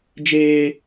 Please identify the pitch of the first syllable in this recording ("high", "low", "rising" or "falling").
high